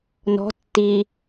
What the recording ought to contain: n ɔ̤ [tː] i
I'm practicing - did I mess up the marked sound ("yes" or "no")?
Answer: no